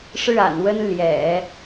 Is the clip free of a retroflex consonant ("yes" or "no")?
no